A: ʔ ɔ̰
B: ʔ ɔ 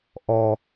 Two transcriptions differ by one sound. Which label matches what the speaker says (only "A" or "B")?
B